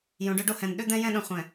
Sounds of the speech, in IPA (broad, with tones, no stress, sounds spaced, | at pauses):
j õ˨˦ ɖ ɵ˦ ɖ o˦ h ɛ̃˨ n ɗ ʏ˦ d̪ ɛ̃˦ j ɛ̃˦ ɗ ə̃˨ χʷ ɛ̃˨